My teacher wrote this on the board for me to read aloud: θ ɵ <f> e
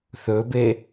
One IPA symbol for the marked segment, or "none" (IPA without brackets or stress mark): b